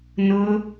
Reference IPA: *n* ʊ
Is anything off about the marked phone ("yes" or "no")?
no